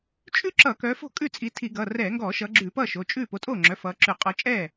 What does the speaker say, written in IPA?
t͡ʃʼ ʉ˥ ǁ ʌ˧˩˧ k œ˨˦ f o̤˥˩ kʼ ʉ˥˩ t͡sʼ i˨˦ tʰ i˧˩˧ ɡ ʌː˩˧˩ r ɛː˧˩˧ ŋ ɡ ɔː˧˩˧ ʃ ʌː˨˦ ɡ͡ǁ ʉː˧˩˧ p ʌː˥˩ ʃ o˩˧˩ t͡ʃʼ ʉː˥˩ p o˨˦ tʼ oː˥˩ ŋ͡ǁ œ˩˧˩ f ʌː˨˦ ǁ ʉ˧˩˧ qʼ ɔ˨˦ t͡ʃʼ ɛː˥˩

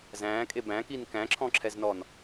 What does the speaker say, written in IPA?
z æ̃ː kʼ e b æ̃ k i n k æ̃ ǁʰ ɔ̃ ǁʰ ɛ z n ɔ n

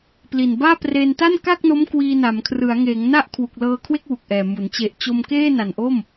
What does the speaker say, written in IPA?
p l i˨˩ n b aː˥˩ p r eː˧ n t a˥˩ n k a˥˩ k̚ n o˦˥ m k w iː˧ n a˩˦ m kʰ r ɯ˩˦ a̯ ŋ eː˩˦ ŋ n a˥˩ ʔ kʰ w u˨˩ k̚ l ɤː˧ kʰ w e˥˩ k̚ w u˨˩ k̚ ʔ ɛː˨˩ m u˩˦ n t͡ɕ e˨˩ ʔ t͡ɕ o˧ m k eː˥˩ n a˨˩ n ʔ o˥˩ m

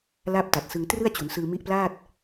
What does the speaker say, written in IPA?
l aː˥˩ p̚ t a˨˩ t̚ s ɯ˧ ŋ t r ɯ˥˩ a̯ t͡ɕ u˩˦ n s ɯː˧ m i˦˥ ʔ p l aː˥˩ t̚

